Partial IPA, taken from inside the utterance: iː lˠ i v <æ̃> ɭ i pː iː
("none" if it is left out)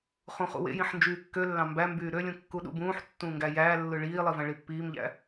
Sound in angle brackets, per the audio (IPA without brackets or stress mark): æ̃